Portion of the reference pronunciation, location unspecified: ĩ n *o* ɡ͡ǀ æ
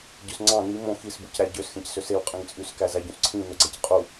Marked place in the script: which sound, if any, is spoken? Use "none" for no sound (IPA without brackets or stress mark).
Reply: o